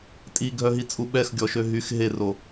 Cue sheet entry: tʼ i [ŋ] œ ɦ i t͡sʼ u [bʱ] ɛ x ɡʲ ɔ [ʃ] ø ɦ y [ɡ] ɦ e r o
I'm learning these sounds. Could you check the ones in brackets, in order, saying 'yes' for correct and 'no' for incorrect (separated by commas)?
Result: no, no, yes, no